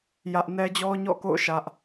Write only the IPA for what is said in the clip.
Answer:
jä˦ʔ nɛ˦d͡ʑɔ˦ɲɔ̰˦˨ko̰˦˨ʊ̯ ʃä˦ʔ

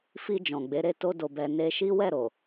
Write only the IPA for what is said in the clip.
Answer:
fi˧ d͡ʒɔ̃˨ɡ͡be˨˦ ɾe˦˨ to˧do˨bɛ˨ ne˧ʃi˦ wɛ˦˨ɾo˨

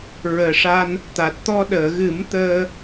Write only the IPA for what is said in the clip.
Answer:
ɹəː˨˩ʂa˧n | t̪a˨˩t̚t̪ɔ˧ ɗəː˨˩˨ɣɨ˨˩˦m t̪əː˧

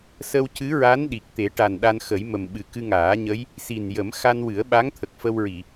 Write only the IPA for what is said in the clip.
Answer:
sə˧wcɨ˧˥ɹa˧˥n ɗi˨˩k̚t̪e˨˩˦ʈa˨˩n ɗa˧nxə˨˩˦jmə˨˩mɓɨ˨˩ kɨ˧ŋaː˨˩˦ɲə˧˥j | si˨˩njə˨˩˦m xa˧nwɨ˨˩˦ə̯ɓa˧˥ŋ t̪ʰə˨˩k̚fə˧wɹi˨˩˨

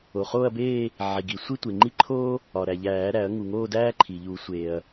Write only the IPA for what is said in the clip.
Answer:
o˩χoː˥˧ɐ̯beː˥˧ | ʕi˩ɡi˩ sʷi˥tʷe˩ŋ͡ǃi˥ ǃʰoː˥ | ɒ˩ ɾæ˩ʎæː˨˩˦ɾæ˨˩˦ɐ̯ ŋu˩ŋoː˥˧dæː˥ ǃʰi˩ʎu˨˩˦sʷeː˩ɐ̯

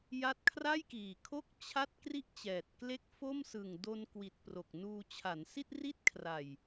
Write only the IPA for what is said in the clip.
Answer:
ja˦˥t̚ kʰra˥˩jkiː˨˩kʰo˥˩k̚ t͡ɕʰa˥˩t̚ kri˥˩ʔt͡ɕɛː˨˩t̚kle˥˩k̚ fo˥˩msɯ˨˩ŋ do˧nkwi˨˩t̚ pro˨˩k̚nuː˧ t͡ɕʰa˩˦nsi˥˩t̚ri˥˩t̚kʰra˨˩j

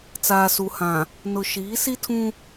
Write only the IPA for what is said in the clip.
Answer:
t͡saː˨su˨hã˨ | nʊ˨ʃiː˨˦si˦ tʰũ˦

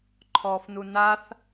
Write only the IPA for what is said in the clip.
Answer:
ǃʰɔːfnunaθ

